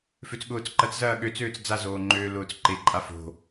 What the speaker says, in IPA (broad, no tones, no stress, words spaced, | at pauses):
føt͡sɠʊːt͡sǃɐt͡szɐː ɠø t͡søːt͡sd͡zazoː ŋ͡ǃøːlʊːt͡sǃeǃʼa fo̤